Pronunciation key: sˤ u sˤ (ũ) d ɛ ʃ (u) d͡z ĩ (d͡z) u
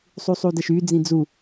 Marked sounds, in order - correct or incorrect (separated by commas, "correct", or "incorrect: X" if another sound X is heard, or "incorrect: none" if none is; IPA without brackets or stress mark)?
incorrect: u, incorrect: y, correct